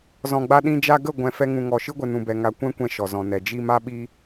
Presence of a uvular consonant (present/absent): absent